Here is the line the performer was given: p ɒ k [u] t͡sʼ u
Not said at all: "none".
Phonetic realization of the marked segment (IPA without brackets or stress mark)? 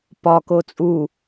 o